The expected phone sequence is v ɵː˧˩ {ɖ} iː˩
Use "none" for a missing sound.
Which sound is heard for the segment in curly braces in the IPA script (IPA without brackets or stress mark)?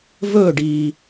ɖ